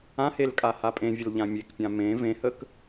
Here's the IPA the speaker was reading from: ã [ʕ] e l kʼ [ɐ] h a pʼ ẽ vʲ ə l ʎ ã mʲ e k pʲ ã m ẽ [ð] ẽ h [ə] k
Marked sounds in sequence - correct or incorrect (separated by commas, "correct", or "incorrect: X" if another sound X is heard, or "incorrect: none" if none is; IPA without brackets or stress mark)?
incorrect: h, incorrect: a, incorrect: v, correct